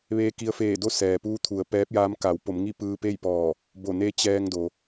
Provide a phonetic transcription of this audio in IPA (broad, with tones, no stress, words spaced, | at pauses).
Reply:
ʋeː˧ki˧ə̯feː˧˩do˥˨ sɛː˩puː˧˥t̪ʰu˩˧ə̯ pɛː˧˥p̚jaː˧˥m ka˩˧wpo˩˧mŋi˥˨ pɯː˧pe˥˨jpɔː˧˩ | bo˧˩ne˧˥ t͡ɕɛː˧ŋ do˩